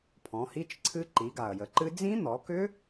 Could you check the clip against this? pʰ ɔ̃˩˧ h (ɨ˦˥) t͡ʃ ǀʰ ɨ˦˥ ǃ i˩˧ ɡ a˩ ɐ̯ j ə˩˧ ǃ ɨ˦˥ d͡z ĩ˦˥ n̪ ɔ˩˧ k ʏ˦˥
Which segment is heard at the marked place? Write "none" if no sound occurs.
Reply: i˦˥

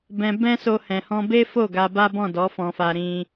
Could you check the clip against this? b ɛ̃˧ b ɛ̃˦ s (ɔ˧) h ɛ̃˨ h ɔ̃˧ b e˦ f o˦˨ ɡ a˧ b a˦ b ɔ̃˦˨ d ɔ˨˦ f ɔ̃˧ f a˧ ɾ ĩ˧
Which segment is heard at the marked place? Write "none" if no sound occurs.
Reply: o˧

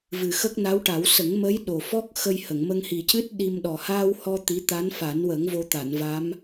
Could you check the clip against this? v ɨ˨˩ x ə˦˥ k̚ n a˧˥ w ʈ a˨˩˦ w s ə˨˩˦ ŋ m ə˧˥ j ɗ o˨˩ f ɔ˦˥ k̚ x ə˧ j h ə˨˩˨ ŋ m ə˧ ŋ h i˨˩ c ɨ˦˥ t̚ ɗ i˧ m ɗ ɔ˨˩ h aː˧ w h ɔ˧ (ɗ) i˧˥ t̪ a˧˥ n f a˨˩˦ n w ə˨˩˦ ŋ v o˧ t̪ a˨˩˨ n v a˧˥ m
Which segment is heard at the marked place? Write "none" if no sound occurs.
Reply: t̪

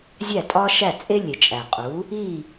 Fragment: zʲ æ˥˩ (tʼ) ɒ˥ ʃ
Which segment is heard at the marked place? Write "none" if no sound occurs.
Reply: tʼ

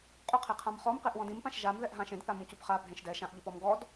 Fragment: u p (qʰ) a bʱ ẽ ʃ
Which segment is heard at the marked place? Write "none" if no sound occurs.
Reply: χ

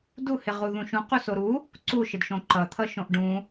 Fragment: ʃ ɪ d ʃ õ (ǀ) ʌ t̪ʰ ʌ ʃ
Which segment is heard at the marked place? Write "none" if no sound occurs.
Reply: ǃ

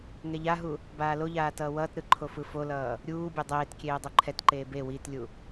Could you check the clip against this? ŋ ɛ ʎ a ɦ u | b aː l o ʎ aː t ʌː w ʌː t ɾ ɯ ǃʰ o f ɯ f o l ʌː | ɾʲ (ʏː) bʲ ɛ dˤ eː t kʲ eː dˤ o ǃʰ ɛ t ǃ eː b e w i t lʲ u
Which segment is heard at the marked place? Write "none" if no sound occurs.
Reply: uː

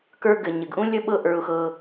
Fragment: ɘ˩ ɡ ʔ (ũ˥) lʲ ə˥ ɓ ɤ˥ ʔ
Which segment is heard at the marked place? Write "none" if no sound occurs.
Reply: ũ˥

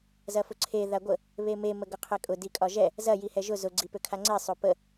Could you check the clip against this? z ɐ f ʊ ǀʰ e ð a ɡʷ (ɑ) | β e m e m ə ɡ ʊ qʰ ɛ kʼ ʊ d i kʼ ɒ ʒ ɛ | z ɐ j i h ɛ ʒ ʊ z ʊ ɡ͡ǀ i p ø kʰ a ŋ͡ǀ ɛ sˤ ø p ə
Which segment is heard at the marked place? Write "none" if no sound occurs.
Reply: ə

